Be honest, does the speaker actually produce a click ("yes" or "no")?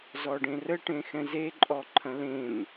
yes